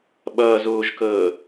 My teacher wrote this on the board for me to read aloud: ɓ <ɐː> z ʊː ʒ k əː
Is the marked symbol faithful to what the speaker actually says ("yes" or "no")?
yes